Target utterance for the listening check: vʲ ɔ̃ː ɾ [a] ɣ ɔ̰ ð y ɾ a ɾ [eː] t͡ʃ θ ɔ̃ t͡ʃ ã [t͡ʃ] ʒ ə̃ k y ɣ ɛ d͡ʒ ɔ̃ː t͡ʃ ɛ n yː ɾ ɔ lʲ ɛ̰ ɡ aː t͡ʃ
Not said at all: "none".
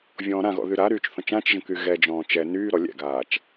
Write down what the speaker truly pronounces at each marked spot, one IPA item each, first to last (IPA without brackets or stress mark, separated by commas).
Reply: ã, yː, t͡ʃ